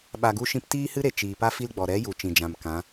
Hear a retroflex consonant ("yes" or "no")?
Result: no